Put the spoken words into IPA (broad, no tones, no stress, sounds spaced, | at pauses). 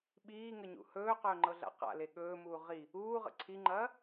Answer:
ɓ iː ŋ ə ɲ ṵ h ɵː q ɵː ŋ͡ǃ ɤ ɮ a̰ q a̰ l e ɠ ɵː m uː ʁ i | uː ʁ ə̰ ǀʰ i ŋ͡ǃ ɐː